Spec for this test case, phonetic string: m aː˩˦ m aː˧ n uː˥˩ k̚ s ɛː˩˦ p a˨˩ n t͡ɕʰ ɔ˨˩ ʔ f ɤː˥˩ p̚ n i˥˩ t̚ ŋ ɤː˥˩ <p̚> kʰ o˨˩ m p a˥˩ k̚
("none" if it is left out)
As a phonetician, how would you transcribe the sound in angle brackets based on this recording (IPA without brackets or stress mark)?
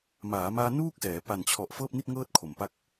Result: t̚